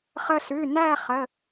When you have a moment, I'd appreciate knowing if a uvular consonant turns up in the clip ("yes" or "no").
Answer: yes